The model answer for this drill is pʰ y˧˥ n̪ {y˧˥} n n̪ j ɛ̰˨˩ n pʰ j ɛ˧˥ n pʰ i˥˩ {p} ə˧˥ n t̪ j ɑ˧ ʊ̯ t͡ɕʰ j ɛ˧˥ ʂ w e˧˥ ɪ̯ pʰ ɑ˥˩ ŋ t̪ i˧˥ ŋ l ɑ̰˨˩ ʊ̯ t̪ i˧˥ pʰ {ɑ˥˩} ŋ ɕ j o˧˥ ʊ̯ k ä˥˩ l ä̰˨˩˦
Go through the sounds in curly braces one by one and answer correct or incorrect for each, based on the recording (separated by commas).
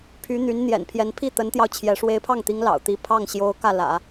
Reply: correct, incorrect, correct